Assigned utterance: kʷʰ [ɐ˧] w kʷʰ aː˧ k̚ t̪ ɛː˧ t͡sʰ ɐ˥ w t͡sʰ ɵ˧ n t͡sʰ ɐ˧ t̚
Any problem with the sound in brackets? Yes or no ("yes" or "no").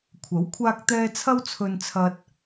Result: yes